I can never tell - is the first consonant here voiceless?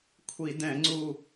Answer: yes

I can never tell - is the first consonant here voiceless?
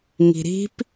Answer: no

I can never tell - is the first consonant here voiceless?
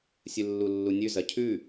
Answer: yes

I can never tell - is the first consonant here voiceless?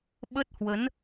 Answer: no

